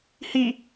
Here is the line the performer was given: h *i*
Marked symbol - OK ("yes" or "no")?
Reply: yes